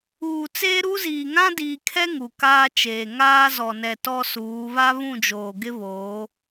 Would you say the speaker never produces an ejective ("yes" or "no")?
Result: yes